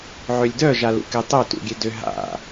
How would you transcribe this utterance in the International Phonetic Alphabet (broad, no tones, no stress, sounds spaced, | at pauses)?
ʕ ø lʲ d œ ʒ a l ṵ k e tˤ ø t ṵ ɡʲ e d ʏ ɦ a̰